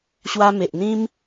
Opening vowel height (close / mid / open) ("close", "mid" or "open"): open